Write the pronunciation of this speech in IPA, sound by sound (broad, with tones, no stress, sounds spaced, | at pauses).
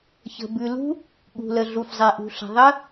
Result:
ç ə̤˩ b ʉ˩ l ṳ˦˥ | ɠ ṳ˩ l ə˩ ɮ u˩ f zˤ e˩ ʔ ṳ˩ ɬ ə̤˩ ðˤ ə˦˥